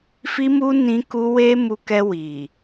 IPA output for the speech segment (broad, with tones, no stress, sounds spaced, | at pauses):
f i˦ m u˦ n ĩ˧ k u˧ w e˧ m u˧ k ɛ˧ w i˨